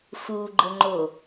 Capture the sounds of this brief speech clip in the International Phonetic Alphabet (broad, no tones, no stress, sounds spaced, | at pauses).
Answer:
x u ɡ͡ǃ ə ŋ͡ǃ o